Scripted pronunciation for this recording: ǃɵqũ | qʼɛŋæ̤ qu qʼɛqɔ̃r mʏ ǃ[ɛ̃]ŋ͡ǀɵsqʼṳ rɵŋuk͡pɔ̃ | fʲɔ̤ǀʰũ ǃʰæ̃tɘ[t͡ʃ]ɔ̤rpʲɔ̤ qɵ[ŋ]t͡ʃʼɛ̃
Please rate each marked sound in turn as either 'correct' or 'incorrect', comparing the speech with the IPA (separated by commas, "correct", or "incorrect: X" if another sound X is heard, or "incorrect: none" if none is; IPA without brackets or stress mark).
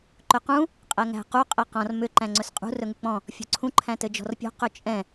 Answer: incorrect: æ̃, incorrect: d͡ʒ, incorrect: none